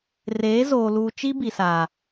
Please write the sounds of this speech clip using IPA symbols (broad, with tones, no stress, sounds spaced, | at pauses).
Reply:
r eː˨˦ z oː˨ l uː˨ t͡ʃ i˦ b i˨ s aː˨